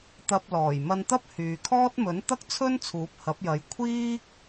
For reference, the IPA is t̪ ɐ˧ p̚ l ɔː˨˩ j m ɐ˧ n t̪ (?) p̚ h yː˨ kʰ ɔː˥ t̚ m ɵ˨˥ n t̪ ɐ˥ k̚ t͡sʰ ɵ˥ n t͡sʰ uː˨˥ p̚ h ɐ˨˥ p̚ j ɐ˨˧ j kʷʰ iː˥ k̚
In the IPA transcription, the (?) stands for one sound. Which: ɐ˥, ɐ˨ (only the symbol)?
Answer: ɐ˥